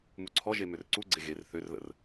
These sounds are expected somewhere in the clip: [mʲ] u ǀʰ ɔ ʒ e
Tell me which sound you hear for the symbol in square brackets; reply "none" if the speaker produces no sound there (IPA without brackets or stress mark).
m